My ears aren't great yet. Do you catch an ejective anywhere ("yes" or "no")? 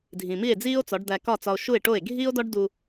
no